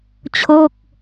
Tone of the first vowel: falling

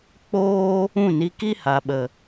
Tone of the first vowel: high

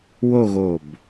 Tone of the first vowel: falling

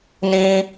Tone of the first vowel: high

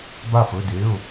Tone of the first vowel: falling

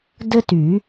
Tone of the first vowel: high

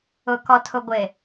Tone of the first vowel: low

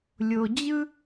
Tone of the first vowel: low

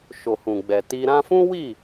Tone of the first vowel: low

